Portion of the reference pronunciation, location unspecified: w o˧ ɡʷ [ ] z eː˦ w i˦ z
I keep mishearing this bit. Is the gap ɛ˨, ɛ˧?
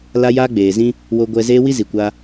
ɛ˧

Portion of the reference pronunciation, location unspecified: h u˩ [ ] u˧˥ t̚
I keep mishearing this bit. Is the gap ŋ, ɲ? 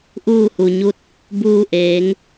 ɲ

